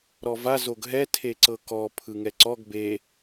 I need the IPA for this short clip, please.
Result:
ɾ ɔ v a z o ɡ ɦ ɛ tʰ e ǀ ɤ k ɔ pʰ ɯ ŋ ɛ ǀ ɔ ɡ b e

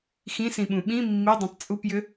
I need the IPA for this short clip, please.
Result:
x ĩ s ĩ ɓ ũ ɓ ĩ mː i dˤ ĩ tˤ t͡sʼ u p j ʏ

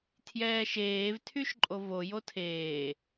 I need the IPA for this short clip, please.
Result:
tʰ j ɛː ʃ eː v tʰ y ʃ ǃʼ o v o j o tʰ eː

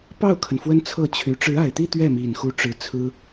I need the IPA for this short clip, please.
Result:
p ɑ˥˩ ʊ̯ kʰ ə˩ n f w ə˥ n t͡sʰ ɤ˥˩ t͡ɕʰ y˧˥ ʈ͡ʂ ɻ̩˧˥ a˨˩ ɪ̯ t̪ i˥˧ t̪ ɥ ɛ˥˩ m i˨˩ n x u˧˥ ʈ͡ʂ ɻ̩˧˥ t͡sʰ ɹ̩˥

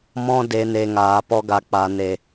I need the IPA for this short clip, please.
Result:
m ɔ̃˦ d e˧ n e˨ ŋ aː˨ p ɔ˧ ɡ a˨ k͡p a˨ n e˨

